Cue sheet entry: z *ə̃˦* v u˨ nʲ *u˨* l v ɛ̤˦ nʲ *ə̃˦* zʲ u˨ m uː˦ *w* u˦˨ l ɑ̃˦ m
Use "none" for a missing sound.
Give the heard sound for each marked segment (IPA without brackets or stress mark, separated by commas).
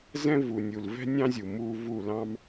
ɛ̃˦, u˨, ɑ̃˦, v